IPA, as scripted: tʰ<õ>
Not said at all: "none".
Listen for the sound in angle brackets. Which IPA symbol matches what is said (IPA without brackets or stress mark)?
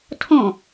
õ